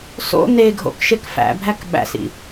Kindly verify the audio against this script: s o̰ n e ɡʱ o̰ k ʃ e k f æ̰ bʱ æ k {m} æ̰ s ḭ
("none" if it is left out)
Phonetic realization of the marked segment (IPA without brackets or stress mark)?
ɓ